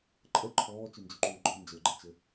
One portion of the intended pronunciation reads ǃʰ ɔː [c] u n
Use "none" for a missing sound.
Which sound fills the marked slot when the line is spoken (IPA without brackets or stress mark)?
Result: t͡ʃ